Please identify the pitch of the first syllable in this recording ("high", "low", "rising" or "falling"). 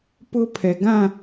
high